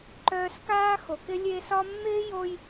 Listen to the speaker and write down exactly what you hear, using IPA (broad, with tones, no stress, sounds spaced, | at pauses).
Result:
ǃ œː˧ s k aː˦ x o˨ k ɪ˦ lʲ e˧ s ɒ˦ mː ɪː˦ j o˧ j